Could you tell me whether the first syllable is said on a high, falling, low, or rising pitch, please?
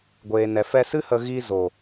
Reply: low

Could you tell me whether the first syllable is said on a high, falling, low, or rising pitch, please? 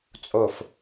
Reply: low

